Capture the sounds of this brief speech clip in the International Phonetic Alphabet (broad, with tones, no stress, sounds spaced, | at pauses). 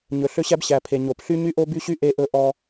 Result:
ɲ ɵ˨ ɬ ø˦ ɕ æ˦ b ɕ æ˨ pʰ e˨ ɲ o˨ p ɬ y˦ ɲ y˦ ʔ o˦ b y˦ ɕ y˦ ʔ e˦ ʔ ɵ˦ ʔ ɔ˦